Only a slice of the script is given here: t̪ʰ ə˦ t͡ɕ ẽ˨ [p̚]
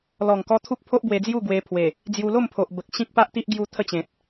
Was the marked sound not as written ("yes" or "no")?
yes